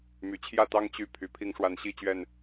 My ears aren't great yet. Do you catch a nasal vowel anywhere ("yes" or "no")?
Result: no